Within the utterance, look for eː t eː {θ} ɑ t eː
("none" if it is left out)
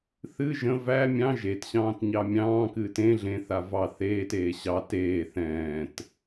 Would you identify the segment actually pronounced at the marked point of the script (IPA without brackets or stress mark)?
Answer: ɕ